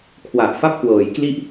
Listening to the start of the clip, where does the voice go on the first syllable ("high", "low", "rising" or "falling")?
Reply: low